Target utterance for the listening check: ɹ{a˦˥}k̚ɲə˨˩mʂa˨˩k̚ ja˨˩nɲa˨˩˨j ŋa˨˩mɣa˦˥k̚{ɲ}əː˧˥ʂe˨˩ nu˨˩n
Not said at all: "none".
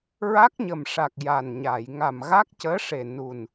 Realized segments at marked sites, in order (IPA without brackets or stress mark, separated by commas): a˦˥, c